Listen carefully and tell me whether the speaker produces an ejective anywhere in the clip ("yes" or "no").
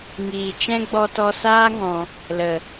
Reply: no